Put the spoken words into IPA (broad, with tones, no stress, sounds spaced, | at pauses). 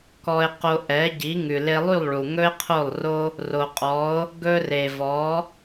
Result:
k ɔ˧ e̯ q o˧ ʔ ɛ˩˥ ɟ i˩˥ ŋ ʉ˩ l e˧ lˠ y˥˩ lˠ ɭ u˩ ŋ ɵ˥ e̯ qʰ o˥˩ lˠ r o˥ | r o˩ qʼ ɔ˩˥ o̯ | ɡ ɵ˧ r e˩ v ɔ˩˥